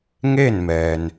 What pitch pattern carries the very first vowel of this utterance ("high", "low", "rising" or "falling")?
falling